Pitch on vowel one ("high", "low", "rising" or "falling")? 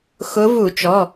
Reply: rising